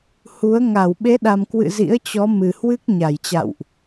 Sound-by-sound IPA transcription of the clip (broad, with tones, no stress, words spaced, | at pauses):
hu˨˦ə̯ ŋa˧˩wɓe˨˦ɗa˨˩mkwɨ̰˧˨ zḭ˧˥ə̯t͡ɕɔ˨˦mɨ˨˩hwɨ˦˥k̚ ɲa˧˩jt͡ɕa̰˧˨wʔ